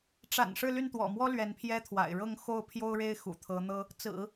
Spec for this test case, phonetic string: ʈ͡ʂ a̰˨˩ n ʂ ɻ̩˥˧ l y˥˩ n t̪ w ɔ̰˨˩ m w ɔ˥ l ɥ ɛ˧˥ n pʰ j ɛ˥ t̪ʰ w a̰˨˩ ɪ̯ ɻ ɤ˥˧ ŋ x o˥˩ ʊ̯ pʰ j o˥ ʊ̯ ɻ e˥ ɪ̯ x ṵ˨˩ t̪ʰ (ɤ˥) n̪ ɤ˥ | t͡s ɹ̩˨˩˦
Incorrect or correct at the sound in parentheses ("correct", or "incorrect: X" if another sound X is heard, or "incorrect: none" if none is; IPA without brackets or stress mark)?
incorrect: ɤ˧˥